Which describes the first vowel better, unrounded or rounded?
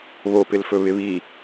rounded